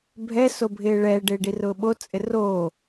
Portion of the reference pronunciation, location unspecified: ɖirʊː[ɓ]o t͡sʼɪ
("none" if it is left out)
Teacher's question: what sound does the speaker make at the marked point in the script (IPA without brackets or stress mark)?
ɓ